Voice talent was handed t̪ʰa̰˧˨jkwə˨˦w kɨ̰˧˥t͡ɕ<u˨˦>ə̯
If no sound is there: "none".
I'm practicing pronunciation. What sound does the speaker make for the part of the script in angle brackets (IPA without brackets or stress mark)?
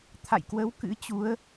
u˨˦